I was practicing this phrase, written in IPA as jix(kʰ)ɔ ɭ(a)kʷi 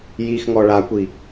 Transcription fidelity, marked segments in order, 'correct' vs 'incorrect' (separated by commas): incorrect, correct